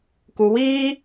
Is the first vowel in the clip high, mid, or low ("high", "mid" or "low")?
high